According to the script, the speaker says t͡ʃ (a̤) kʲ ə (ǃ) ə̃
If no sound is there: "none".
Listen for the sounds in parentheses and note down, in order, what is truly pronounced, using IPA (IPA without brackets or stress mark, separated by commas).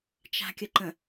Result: a̤, ǃ